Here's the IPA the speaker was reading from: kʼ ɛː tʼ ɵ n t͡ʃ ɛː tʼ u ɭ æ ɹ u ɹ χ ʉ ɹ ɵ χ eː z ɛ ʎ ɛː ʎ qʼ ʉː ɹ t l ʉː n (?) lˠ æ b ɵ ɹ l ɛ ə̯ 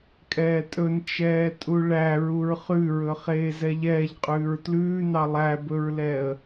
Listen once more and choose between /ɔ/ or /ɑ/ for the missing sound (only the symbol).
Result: ɑ